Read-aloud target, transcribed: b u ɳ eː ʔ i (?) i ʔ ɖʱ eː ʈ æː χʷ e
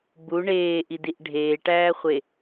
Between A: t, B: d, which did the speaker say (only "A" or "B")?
B